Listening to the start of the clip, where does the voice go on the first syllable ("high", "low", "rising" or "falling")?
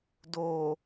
low